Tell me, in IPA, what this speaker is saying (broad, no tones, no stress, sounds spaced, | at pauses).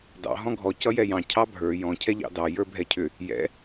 d ɑ̰ ɦ ɔ̃ ɡʱ ɔ c ʌ j ɛ j ɑ̃ cʰ ɑ bʱ ə˞ j ɔ̃ cʰ ɛ ʎ ɑ̰ d ɑ j ə˞ bʱ ɛ cʰ ʏ | j ɛ̰